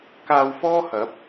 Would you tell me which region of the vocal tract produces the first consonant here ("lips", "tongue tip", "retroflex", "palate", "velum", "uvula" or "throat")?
velum